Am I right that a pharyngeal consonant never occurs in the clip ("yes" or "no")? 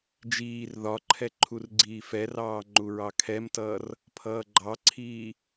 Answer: yes